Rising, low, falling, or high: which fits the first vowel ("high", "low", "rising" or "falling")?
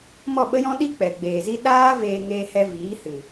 falling